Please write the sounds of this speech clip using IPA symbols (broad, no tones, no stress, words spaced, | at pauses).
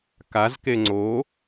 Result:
kazke ŋ͡ǀo